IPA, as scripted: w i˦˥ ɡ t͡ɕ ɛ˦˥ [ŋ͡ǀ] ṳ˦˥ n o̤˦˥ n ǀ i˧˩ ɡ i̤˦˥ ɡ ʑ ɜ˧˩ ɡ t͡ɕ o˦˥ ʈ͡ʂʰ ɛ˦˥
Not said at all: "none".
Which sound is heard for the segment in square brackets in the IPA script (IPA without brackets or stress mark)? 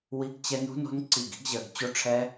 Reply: n